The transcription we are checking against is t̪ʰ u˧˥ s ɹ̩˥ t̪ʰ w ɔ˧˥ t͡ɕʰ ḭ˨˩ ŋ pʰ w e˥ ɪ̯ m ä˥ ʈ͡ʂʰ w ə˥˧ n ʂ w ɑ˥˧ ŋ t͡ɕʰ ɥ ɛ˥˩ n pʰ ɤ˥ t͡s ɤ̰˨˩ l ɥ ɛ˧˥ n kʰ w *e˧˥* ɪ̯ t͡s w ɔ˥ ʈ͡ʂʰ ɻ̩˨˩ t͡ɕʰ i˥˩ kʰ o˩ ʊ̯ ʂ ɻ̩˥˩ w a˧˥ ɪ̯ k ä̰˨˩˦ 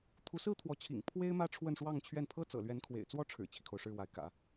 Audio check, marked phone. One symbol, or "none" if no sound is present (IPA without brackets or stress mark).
ḛ˨˩